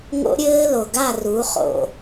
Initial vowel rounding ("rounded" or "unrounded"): rounded